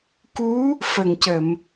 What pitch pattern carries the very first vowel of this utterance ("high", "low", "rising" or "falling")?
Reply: rising